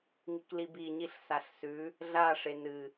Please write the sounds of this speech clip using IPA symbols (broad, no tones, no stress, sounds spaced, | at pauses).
ŋ i k l i b i ɲ i ɬ s a ɬ s ʉ | ɮ a ʂ e n ɨ